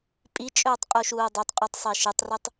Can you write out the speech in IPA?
pʼit͡ʃʼɵːtˤ qʼuʃuːdˤɵtˤqʼʉtˤ sˤeʃɨtˤrɨtˤ

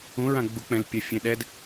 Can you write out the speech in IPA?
ũɹã ɡ͡buk͡pɛ̃l pʲɛfʲẽɗɛd

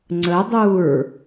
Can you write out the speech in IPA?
ŋ͡ǀədˤuɹ

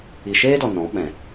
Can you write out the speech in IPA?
i˨ʃeː˦dɔ˨ nɔ̃˨˦ ɓɛ̃˨

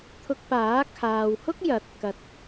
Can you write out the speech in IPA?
t̪ʰʊ˧k̚ paː˨˥ kʰaː˨whʊ˥k̚ jɐ˨˥t̚ kɐ˨t̚

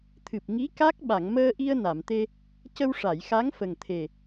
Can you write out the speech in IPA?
t̪ʰɨ˨˩p̚ŋi˧˥ ka˦˥k̚ ɓa˨˩˨ŋməː˧ʔi˧ə̯ na˨˩˨mt̪e˧ | cə˧wʂa˨˩˨jxa˧˥ŋfə˨˩ŋ t̪ʰe˨˩

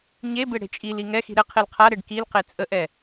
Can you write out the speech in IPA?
ɲebe ɽe̤t͡ʃʼili ŋɛxi̤ ɾɘ qʰelqʰaɾeɖ kilqe t͡sʼəʔɛ

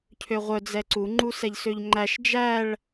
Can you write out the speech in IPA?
cʰøʁʷœ d͡zɛǀuŋ͡ǃu sɛʎsøʎŋ͡ǃæʃ d͡ʒæɭ

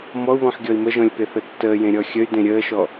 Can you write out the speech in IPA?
mɔu̯βɔ̃ħɡʲɔi̯ məʒɔ̃lʲpeθə tːəːjẽɾʲɔ xʲəy̯dẽ ɾʲəːʃɔ

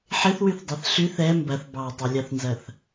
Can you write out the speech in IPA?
ħɪθwyθdˤɛθ ɬyθ ɛ mbɐθ bɑtˤɐlʲɑθnzɐθ

